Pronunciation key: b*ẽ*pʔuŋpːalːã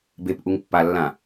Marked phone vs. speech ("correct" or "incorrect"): incorrect